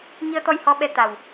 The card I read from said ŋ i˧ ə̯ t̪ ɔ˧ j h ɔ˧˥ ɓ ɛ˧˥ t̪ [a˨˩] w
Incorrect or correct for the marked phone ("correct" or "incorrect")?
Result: correct